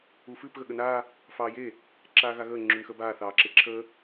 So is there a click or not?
yes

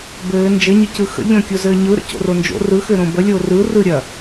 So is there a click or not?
no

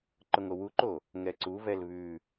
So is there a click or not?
yes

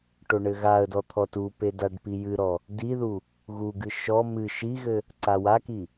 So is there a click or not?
yes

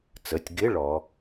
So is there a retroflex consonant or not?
yes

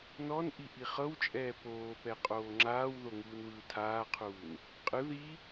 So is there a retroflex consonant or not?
no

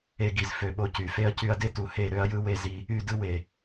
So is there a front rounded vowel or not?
yes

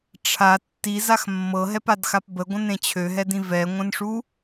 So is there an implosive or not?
no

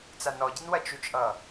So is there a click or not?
no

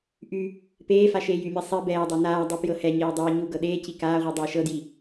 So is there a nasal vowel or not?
no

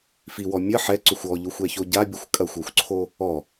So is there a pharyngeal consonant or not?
yes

